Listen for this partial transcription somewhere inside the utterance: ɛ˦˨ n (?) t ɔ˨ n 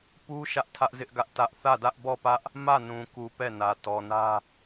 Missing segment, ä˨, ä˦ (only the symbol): ä˨